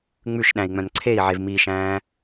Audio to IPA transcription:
ŋ͡m ʉ ʃ ɗ æ̃ i̯ ŋ͡m œ̃ n ǀʰ e i̯ ʕ e v m i ʃ æ̃ː

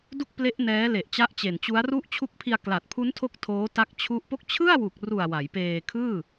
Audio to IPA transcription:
d u˥˩ k̚ p l e˦˥ ʔ n ɛː˦˥ l e˨˩ ʔ t͡ɕ a˦˥ ʔ t͡ɕ e˨˩ n t͡ɕ u˦˥ a̯ r u˦˥ ʔ t͡ɕʰ u˦˥ k̚ pʰ i˧ a̯ k l a˨˩ t̚ pʰ u˦˥ n tʰ o˦˥ k̚ tʰ oː˦˥ t a˦˥ k̚ t͡ɕʰ u˦˥ ʔ p o˦˥ k̚ t͡ɕʰ ɯ˥˩ a̯ w u˨˩ k̚ r u˨˩ a̯ w a˩˦ j p eː˧ kʰ ɯː˥˩

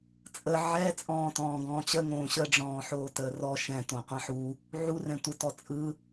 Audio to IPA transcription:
t͡sʼ ə ʕ ɛ t͡sʼ ɔ̃ː t ɔ̃ː ɡ ɔ̃ː t͡ɕ ə ŋ õː ɕ ə ɖ͡ʐ ɔ̃ː ħ oː t əː r ɔ ʃ ɛ̃ t õ qʷ ɛ̃ ħ u | ʕ u r ɛ̃ tʷ ə t ɔ t͡sʼ ɯ

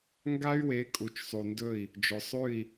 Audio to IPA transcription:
ŋ ɡ a˦ y̯ w e˨˦ kʼ u˨ t͡ʃ sˤ u˨ n d ɵ˦˨ i̯ | d͡ʒ ɵ˨ sˤ ʉ˦˨ i̯

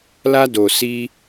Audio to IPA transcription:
l a˦ d o˧ s i˦

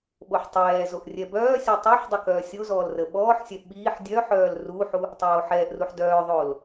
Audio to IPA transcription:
ɓ o ħ tˤ ɛː z o ʔ rʲ ɛ b œː sʲ ɔ tˤ œ ħ dˤ ə k œː sʲ o z ɔː l r ə ɓ ɔː ħ sʲ ɛ ɓ iː ħ dʲ œ ħ œː l r u ħ u | tˤ oː ħ ɛː ʔ r u ħ d œː ðˤ oː l

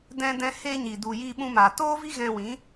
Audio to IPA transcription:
d ɛ̃˧ d ɛ̃˧ h e˧ ɲ i˨ d u˨ j iː˧ ɓ ũ˧ m aː˨ t oː˦ v i˦ ɣ ɛ̃˧ w ĩ˨˦

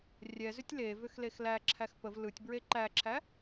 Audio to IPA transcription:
rʲ ɛ z ʏ tʲ l e v ʏ x l e x l æ ǁʰ æ x p ə v l ɯ tʲ b ɹ e ǃ æ ǁʰ æ

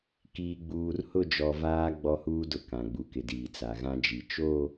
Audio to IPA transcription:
k iː˨ ɡ͡b uː˨ r h ʊ˦˨ d͡ʒ ɔ˨ v aː˦ ɡ͡b ɔ˦ h uː˦ d ʊ˨ k ã˨ ɡ͡b u˨ k ɪ˨ d iː˨ t͡s a˨ ɣ ã˦ d͡ʒ i˨ t͡ʃ o˦˨

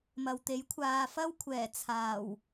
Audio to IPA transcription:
m ɐ˨ w t̪ e˨˥ j kʷʰ aː˨ f ɐ˥ w kʷʰ ɛː˨˩ t͡sʰ aː˨˩ w

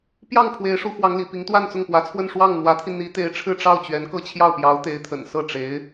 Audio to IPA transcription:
p j ɑ˥˩ ŋ pʰ w e˧˥ ɪ̯ ʂ u˧˥ x w ɑ˧˥ ŋ l ḭ˨˩ p i˧˥ ŋ t̪ w a˥˧ n t͡s ʊ˥˩ ŋ p w ä˧˥ t͡sʰ w ə˥˧ n ʂ w ɑ˥˩ ŋ n̪ w ä˧˥ t̪ʰ i˧ n̪ i˧˥ t̪ e˧˥ ɪ̯ ʈ͡ʂʰ ɻ̩˥˧ ʈ͡ʂ ɑ˥˩ ʊ̯ t͡ɕ ɥ ɛ˧˥ n k ɤ˥˧ t͡ɕʰ j ɑ˥˩ ʊ̯ p j ɑ˧˥ ʊ̯ t̪ e˧˥ ɪ̯ t̪ʰ ə̰˨˩ n s ɤ˥˩ ʈ͡ʂ e˧˥ ɪ̯

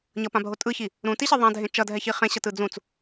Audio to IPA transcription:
ɲ ʌ p ã bʱ o tʼ ɯ ç i | ɾ ũ t i ɕ e ðˤ ã dʱ ẽ t͡ʃ ʌ dʱ ɛ ç i χ ẽ ɕ ʌ t ɯ d͡z ũ t͡s

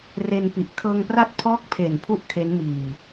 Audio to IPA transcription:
r e˧ n p i˨˩ ʔ kʰ ɤː˧ ŋ p r a˥˩ t̚ pʰ ɔː˥˩ k̚ pʰ e˨˩ n pʰ u˥˩ ʔ kʰ e˦˥ n m iː˨˩

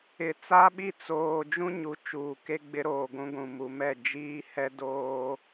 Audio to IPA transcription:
ɪ˨ t͡s a˦ ɓ i˦˨ t͡s oː˨ d͡ʒ ũ˦ ɲ u˨˦ t͡ʃ uː˨ k e˦ ɡ͡b ɪ˦ ɾ oː˨ ɡʷ ũ˦ ɡʷ ũ˨ m u˨ m ɛ˦˨ d͡ʒ iː˦ h ɛ˦ d oː˦

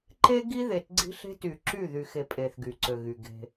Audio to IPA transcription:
ǃ e˦ ɡ i˦ ð e˨ t ɡ͡ǀ i̤˦ ɬ e̤˦ t y˨ ǁ y˦˨ ð y˨ x e˨ pʼ e˨ θ ɡ y˨ ǀ ø˨ ɣ y˨ ɡ e̤˦

